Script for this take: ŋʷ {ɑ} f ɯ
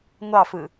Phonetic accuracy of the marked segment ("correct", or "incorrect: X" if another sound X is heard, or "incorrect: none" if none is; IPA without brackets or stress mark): correct